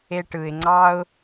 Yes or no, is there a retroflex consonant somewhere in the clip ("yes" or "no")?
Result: yes